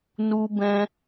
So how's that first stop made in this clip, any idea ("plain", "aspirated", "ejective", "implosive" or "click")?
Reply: plain